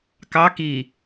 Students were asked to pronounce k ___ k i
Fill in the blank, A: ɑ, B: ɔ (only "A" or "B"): A